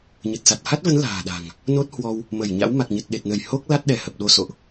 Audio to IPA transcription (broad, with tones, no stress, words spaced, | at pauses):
ɲə˨˩t̚sa˨˩t̚ha˦˥t̚və˨˦n la̤ː˨˩ɗa̤˨˩ŋ | no˦˥t̚hwɔ˧w | mə˧˩jɲa̰˧˥w ma˨˩k̚ɲə˨˩t̚ɗe˨˩t̚nə˧˩j ho˦˥k̚ la˦˥t̚ɗɛ˧˩hə˨˩p̚ɗo˧ so̰˧˨ʔ